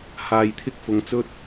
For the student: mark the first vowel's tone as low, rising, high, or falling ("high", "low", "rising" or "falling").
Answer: low